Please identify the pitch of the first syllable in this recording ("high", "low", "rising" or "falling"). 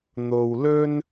low